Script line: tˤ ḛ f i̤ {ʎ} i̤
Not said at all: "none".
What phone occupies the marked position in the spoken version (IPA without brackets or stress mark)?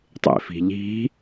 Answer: ʎ